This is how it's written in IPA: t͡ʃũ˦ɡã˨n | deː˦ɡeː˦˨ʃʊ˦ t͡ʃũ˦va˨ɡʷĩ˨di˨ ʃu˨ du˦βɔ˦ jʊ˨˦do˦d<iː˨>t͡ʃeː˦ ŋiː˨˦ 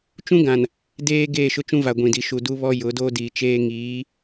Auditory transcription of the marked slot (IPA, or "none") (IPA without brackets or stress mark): iː˨